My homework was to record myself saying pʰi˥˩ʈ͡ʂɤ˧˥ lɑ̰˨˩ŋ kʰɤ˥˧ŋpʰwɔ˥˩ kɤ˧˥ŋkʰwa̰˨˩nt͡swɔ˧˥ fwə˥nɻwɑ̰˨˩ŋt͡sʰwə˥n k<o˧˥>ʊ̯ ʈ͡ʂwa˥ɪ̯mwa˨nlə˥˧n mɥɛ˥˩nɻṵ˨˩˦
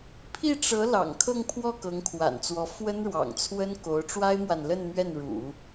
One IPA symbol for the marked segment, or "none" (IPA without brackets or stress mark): o˧˥